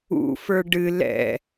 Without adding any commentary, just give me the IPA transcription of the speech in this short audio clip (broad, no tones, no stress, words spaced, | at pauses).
ṵfə˞ ɖɨ lɛ̰